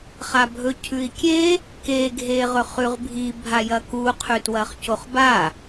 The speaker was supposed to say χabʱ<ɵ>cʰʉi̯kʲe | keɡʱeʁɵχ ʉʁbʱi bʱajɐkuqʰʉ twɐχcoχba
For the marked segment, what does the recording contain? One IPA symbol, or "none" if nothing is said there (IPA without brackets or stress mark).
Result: ɵ